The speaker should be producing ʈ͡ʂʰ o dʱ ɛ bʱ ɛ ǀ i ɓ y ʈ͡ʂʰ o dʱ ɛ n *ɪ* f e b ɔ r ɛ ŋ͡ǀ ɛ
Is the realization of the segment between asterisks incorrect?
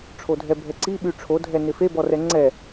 no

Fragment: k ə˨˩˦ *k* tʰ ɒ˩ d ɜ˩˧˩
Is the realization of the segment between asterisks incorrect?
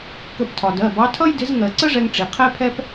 yes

